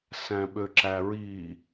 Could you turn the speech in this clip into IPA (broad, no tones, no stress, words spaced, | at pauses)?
sæ̃ɓøǁæɹi